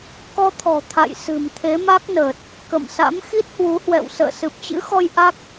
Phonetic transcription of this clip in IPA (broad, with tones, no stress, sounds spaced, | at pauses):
k ɔ˧ t̪ʰ ɔ̤˨˩ t̪ʰ a̰˧˨ j s ɨ̤˨˩ m t̪ʰ e˨˦ m a˦˥ k̚ n əː˨˩ t̚ | k ə̰˧˨ m s a̰˧˥ m x i˦˥ t̚ h w u˨˦ h w ɛ̰˧˨ w s ə̰ː˧˨ s ɨ˨˩ p̚ t͡ɕ ɨ̰˧˥ x ɔ˧ j ʔ a˦˥ k̚